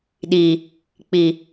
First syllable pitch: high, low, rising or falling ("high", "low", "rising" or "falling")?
low